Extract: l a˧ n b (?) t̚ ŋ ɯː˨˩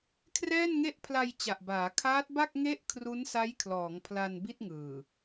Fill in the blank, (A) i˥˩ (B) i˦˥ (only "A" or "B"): A